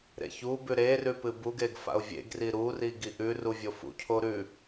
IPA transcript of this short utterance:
ɾ ḛ ç u b ʉ ɾ e r ʉ p ɨ b u ɡ e ɡ f a̰ ʊ̯ vʲ ḛ ɡ r i ɾ u r i ɡ i ʔ ʉ r u vʲ o f ṵ cʰ o ɾ ʉ

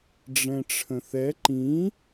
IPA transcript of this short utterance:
ɖ͡ʐ ɛ̃ ʈ͡ʂʰ ə̃ θ ɛ ǃ ĩ

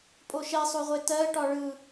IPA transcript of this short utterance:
pʼ o ʃ ɛ sˤ o ʁʷ e t ɜ ʈ ɒ ɭ ɯ

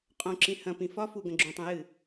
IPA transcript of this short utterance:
qʼ õ ǁ ĩ h ɐ̃ p ĩ f ɒ f u ɡ ɐ̃ ɡ͡ǁ ũ tˤ ẽ j ɨ

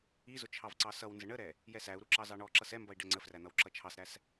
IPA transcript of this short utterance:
i z ʊ t͡ʃʰ ɑ v ǀ ɑ s ʌ w n z ə ɳ ə ɾ ɛ | j ɛ s æ u̯ ɾ u ǁ ɑ z ɑ ɳ ɔ ǁ ʌ s ɛ m b ʌ i̯ ɖ ɛ ŋ͡ǀ ə f r æ n̪ ʌ w ǁ ʌ t͡ʃʰ ɑ s ɾ æ s

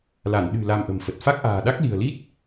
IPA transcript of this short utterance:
l a˧˩ n ɗ ɨ̤˨˩ l a˧ m ʔ ə̤˨˩ m f ə˨˩ t̚ f a˦˥ k̚ ʔ a̤ː˨˩ ɗ a˦˥ k̚ l i̤˨˩ ə̯ l i˦˥ t̚

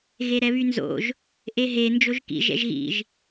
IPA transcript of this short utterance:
ɣ e ɾ ɛ β y n z o̰ ʒ | ʔ e ɦ e n d͡ʒ o ʒ k ḭ ʒ ɛ̰ ʒ ɣ ḭ ʒ

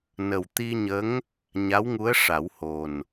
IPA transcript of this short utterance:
n ə˨˩ w t̪ i˧ ɲ ə˧˥ ŋ | ɲ a˧˥ w ŋ u˧˥ ə̯ ʂ a˨˩˦ w h o˨˩ n

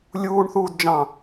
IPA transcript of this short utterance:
lʲ uː ɳ θ uː d d͡ʒ ɑ̃

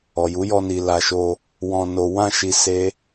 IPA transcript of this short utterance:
ɔ˨ j u˨˦ j ɔ˧ n i˨ l a˨ ʃ o˧ | w ɔ̃˧ n o˧ w ã˧ ʃ i˧ s e˦

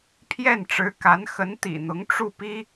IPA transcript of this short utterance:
pʰ j ɛ˥˩ n ʈ͡ʂ ɻ̩˧˥ k a˧˥ n x ə˧˥ n t̪ ḭ˨˩ n̪ ʊ˧˥ ŋ ʈ͡ʂ u˥˩ p i˥

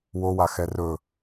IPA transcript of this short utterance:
w o w a x ɛ r ɵ

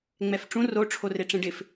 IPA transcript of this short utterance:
ŋ͡m ɛ f ʈ͡ʂ ũ r o ʈ͡ʂʰ o r e ʈ͡ʂ ẽ ɖ ɪ f

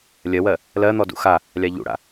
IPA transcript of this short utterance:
lʲ ɜ w ɜ | l ɜ n̪ ɔ d ṵ x a | lʲ a ʎ ṵ ɽ a̰

